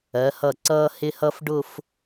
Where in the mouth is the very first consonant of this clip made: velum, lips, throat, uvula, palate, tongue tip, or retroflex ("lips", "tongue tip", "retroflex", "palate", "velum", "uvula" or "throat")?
throat